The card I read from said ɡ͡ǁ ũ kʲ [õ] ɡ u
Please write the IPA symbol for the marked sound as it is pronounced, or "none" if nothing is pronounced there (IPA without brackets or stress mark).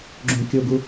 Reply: o